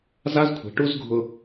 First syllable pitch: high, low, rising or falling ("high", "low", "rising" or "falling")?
high